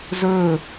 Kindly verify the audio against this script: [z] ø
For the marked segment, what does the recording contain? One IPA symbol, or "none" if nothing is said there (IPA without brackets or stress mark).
z